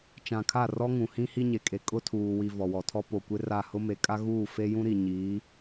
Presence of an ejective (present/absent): present